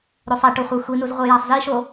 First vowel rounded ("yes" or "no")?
yes